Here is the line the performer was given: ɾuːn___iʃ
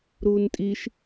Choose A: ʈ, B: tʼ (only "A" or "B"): B